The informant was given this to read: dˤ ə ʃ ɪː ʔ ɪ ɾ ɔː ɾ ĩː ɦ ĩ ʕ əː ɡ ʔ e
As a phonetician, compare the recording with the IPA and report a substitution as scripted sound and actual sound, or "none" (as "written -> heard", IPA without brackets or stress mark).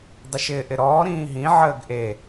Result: none